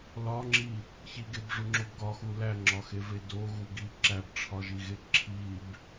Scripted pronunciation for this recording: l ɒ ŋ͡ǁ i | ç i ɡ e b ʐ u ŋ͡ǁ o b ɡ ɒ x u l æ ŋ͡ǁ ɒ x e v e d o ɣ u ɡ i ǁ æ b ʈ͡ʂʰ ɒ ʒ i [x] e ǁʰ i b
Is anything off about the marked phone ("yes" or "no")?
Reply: yes